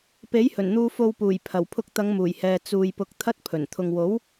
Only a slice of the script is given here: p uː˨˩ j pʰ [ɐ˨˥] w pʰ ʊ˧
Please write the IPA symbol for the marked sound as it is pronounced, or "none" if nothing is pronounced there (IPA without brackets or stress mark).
ɐ˨˩